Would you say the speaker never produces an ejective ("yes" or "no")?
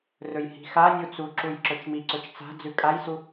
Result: no